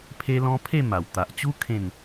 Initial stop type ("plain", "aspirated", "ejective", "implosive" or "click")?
aspirated